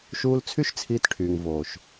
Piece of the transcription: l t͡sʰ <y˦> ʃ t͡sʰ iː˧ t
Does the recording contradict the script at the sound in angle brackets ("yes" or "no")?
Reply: no